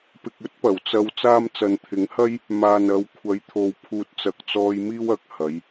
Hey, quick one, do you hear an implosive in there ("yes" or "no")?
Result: no